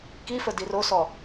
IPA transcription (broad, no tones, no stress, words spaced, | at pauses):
kifə dirosɔ